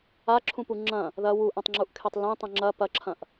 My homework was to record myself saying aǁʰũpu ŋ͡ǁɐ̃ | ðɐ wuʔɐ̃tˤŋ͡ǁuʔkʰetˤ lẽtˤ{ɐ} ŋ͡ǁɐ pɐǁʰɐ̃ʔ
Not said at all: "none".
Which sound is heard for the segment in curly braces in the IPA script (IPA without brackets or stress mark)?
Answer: ɐ̃